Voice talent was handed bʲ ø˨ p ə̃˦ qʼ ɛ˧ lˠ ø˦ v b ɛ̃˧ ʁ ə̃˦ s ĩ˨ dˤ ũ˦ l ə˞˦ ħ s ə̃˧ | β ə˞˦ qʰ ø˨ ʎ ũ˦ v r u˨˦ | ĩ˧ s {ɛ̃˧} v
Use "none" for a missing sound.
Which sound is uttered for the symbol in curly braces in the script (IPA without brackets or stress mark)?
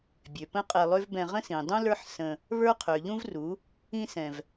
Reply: ɛ̃˨